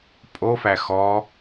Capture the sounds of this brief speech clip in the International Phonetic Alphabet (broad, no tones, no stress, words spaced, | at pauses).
pʼofæ xɔ